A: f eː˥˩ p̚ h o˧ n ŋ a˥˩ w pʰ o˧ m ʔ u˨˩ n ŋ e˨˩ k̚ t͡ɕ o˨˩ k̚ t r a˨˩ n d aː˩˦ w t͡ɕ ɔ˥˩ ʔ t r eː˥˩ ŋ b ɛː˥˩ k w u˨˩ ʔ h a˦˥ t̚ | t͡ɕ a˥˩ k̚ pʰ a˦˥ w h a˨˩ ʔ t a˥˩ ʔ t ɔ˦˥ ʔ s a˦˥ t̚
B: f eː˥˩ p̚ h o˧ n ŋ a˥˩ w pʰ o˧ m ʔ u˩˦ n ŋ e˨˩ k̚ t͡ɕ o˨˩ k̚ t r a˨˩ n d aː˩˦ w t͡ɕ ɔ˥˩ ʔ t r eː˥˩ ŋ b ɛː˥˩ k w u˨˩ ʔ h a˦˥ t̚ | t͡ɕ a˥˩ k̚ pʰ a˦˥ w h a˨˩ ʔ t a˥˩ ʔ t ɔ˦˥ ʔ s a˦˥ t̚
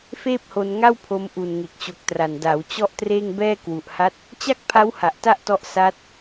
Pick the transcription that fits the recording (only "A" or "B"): A